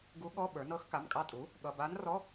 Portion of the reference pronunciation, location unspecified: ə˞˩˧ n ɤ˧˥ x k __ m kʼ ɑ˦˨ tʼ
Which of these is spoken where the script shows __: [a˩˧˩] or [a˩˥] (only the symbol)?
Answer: a˩˧˩